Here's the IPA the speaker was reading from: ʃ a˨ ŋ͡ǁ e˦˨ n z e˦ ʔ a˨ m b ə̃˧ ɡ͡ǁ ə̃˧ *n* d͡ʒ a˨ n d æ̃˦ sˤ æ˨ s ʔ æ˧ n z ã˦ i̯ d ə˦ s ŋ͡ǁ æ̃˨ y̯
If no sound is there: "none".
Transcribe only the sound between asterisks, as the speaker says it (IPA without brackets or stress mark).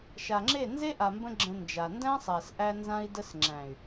n